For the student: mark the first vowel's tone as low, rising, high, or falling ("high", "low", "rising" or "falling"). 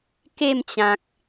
falling